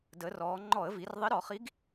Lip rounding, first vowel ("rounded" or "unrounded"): unrounded